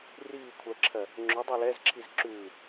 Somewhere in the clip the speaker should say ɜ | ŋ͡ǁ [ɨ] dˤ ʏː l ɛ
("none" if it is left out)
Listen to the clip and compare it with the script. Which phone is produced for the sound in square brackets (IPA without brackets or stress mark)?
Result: ʏ